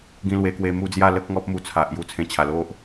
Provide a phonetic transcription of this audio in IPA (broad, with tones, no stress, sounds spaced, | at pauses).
ɡ ĩ˧ l w e˧ k w e˧ m u˧ d͡z j a˥˧ l ə˦ k̚ ŋ ɔ˦ p̚ m u˧ t͡sʰ a˨ ʔ j u˧ t͡sʰ ẽ˧ t͡ɕʰ a˨˩ l o˦ ʔ